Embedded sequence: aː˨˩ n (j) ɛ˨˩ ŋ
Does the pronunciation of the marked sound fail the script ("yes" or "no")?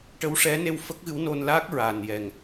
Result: no